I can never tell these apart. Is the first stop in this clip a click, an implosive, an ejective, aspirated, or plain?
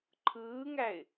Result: click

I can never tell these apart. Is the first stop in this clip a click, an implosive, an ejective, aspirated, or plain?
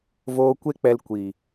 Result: plain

